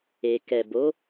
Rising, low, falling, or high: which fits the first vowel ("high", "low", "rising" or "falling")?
low